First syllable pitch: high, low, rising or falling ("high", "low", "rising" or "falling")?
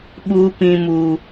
high